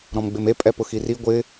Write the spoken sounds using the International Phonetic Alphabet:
ɾɔ̃mɡ͡bɪme pʼɛpʊxiri ɡʷɪ

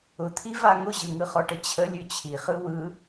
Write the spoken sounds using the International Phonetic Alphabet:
ʊt̪ʰiva ŋʊʑɯŋɯχɔ ʈət͡ɕʰə lʲʉt͡ɕʰiχɯ wɯ

